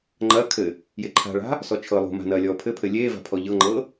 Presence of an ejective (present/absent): absent